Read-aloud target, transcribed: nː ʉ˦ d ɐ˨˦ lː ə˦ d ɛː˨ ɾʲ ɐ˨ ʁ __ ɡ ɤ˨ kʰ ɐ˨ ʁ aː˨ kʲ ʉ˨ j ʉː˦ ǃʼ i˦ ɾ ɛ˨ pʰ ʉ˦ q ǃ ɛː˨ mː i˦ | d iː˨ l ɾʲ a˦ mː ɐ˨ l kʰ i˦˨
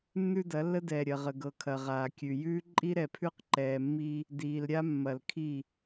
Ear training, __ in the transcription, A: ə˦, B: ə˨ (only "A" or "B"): B